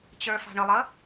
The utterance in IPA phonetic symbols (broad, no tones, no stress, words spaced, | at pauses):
t͡ɕə˞fɑ̤ɳʊlˠʌ